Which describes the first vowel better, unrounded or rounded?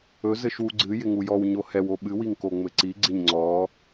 rounded